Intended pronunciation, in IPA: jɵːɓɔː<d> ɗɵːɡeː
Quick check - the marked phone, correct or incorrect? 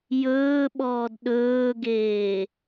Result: correct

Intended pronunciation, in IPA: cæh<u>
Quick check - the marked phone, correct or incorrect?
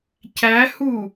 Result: correct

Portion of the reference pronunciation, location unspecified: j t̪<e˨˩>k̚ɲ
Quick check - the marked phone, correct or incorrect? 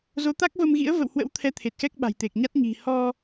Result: correct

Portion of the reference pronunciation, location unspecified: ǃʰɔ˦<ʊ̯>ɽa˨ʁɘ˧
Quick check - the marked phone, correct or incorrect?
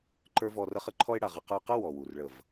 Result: incorrect: ɪ̯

